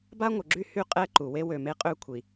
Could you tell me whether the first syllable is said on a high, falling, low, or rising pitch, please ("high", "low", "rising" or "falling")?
high